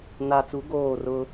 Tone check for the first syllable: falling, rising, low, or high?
low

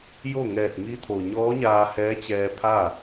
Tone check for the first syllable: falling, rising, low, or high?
falling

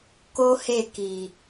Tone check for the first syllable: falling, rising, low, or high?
high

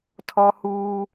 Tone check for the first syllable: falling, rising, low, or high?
high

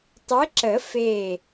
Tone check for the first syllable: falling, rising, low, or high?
rising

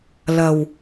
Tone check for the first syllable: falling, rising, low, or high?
low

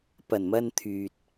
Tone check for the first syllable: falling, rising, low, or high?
low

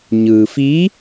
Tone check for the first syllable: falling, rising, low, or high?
low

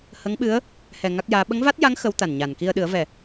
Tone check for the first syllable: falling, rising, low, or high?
rising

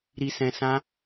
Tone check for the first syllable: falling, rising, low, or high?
low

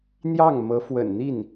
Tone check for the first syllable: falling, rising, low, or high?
falling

